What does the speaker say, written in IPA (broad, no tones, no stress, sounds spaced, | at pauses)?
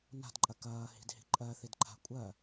n a̤ d ǃʼ ɐ k ɐː h i̤ d h i̤ ǃʼ ɜ θ i d ǃʰ a̤ kʷʼ ɜ